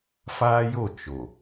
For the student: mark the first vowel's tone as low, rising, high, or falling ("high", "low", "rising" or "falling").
high